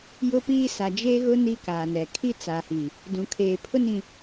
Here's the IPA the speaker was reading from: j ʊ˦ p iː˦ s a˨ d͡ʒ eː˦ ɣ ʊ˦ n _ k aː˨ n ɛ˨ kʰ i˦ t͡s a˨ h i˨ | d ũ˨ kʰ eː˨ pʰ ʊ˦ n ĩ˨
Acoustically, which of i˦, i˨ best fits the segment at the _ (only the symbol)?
i˦